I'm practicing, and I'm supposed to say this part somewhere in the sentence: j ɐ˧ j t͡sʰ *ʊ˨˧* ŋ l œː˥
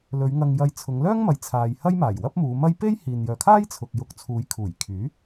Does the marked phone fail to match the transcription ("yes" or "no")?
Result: no